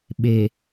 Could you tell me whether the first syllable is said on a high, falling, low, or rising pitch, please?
low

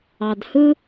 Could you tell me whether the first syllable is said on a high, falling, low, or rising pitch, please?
low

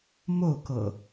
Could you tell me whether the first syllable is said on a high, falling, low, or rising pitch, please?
falling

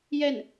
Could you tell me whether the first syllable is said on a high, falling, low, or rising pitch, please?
falling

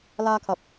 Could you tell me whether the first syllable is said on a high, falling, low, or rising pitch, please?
high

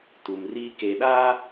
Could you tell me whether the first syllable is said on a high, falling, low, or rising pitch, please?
low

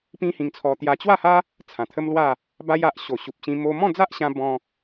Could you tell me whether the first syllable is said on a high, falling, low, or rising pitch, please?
high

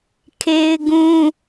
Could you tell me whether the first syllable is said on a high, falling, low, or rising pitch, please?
high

